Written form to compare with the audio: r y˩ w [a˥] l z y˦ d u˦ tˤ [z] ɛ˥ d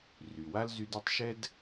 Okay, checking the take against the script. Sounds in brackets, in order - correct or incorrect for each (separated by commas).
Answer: correct, incorrect